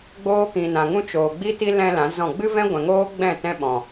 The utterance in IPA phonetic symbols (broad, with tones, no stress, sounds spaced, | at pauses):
ɡ͡b oː˦ k ĩ˨ n ã˨ ŋ ũ˦ t͡ʃ oː˨ ɡ͡b i˦ t i˦ l ɛ̃˧ l ã˨˦ z ɔ̃˦˨ ɡ͡b ɨ˦ v ɛ̃˦ ɡʷ ɛ̃˨ ŋ oː˦ ɡ͡b ɛ̃˦˨ t ɛ̃˦ ɓ ɔ̃˨